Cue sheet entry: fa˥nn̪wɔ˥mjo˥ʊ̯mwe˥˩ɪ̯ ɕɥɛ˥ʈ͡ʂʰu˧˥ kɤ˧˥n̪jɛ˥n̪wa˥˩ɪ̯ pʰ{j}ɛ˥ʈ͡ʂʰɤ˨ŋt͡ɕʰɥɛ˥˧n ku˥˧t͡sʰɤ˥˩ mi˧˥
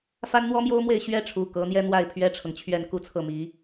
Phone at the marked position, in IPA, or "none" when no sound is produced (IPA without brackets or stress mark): ɥ